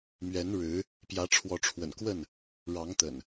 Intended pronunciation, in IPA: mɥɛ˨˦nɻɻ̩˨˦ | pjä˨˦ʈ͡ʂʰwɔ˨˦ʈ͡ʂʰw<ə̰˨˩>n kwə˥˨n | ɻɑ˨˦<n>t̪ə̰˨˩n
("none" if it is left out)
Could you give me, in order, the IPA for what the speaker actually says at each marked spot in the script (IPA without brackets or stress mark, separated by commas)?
ə̰˨˩, ŋ